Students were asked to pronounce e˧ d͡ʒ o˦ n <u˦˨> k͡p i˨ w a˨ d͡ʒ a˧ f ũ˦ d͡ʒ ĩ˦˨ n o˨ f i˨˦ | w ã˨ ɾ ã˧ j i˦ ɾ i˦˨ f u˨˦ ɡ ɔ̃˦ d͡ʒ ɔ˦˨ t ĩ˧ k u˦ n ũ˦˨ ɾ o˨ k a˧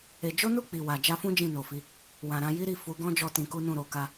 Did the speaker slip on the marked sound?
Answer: no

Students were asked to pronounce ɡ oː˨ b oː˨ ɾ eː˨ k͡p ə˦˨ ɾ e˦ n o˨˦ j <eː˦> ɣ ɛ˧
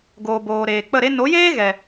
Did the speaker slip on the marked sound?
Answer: no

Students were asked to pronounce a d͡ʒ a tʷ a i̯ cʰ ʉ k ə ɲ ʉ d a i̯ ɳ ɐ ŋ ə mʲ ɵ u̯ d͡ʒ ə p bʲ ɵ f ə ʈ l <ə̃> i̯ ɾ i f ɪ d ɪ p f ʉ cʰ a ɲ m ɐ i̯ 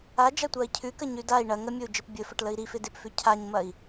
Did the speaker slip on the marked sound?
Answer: yes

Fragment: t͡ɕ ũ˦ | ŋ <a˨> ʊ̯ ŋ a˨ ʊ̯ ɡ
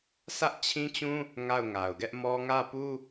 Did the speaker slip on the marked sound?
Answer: yes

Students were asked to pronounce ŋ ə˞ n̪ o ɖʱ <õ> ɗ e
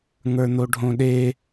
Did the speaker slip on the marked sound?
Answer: no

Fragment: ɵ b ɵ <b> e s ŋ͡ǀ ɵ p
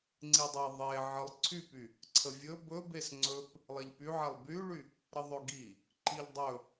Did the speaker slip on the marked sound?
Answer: no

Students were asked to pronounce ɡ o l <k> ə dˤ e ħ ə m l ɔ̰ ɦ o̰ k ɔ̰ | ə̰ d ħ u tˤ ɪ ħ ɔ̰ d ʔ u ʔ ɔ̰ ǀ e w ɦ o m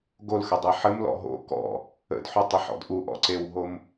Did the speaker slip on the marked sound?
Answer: yes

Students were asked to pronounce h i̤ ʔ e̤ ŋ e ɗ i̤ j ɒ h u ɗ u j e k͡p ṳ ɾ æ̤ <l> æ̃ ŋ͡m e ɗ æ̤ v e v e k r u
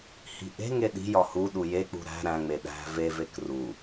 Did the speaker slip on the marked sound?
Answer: yes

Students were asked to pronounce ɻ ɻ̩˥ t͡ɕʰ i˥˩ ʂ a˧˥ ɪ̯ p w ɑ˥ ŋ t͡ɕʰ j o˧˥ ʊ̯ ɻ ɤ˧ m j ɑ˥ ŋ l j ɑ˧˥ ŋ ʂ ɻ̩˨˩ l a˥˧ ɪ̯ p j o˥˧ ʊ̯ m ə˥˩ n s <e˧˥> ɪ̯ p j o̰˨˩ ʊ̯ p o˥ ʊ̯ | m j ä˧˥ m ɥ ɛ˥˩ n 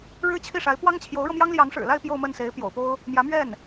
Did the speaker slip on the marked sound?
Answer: no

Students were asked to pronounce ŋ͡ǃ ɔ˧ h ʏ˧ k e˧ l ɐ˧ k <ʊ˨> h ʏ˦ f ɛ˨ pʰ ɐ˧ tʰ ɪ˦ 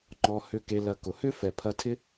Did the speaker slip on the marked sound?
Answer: no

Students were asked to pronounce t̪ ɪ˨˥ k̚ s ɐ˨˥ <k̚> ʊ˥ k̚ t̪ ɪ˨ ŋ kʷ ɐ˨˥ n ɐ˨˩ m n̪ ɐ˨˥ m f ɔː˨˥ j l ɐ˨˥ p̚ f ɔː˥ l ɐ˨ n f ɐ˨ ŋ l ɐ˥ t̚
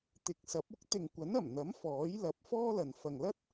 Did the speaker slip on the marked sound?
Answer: yes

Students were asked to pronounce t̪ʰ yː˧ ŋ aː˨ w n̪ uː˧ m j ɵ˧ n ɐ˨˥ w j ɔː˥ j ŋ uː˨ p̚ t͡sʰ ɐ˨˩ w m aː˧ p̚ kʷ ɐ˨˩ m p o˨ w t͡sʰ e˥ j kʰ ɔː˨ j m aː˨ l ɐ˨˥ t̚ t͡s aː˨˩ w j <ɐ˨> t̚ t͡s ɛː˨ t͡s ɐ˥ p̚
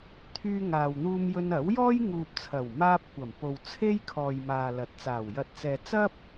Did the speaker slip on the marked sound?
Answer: yes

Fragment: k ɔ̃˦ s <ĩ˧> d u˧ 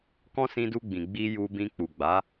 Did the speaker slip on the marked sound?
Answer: no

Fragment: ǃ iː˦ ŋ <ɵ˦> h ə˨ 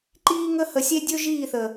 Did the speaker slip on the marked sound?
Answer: yes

